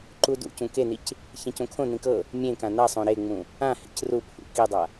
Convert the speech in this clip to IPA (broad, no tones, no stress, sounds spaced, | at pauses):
ǃ u d ṵ c ũ k e n i c | ç ɛ̃ c õ kʰ õ n ĩ k ɤ | mʲ ẽ k ã n a sˤ õ ɾ e ŋ͡m ũ | ã h ḛ c r u pʰ ṵ k i dˤ a